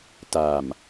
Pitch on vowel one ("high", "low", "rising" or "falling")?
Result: low